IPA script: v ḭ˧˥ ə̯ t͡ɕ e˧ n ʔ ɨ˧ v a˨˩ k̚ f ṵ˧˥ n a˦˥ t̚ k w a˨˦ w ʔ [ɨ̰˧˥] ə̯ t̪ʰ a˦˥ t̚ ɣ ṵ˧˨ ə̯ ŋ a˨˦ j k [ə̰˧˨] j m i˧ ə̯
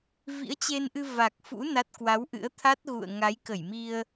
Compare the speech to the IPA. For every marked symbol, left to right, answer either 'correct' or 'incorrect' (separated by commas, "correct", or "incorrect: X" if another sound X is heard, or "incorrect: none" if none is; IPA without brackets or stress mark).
correct, incorrect: ə˧˩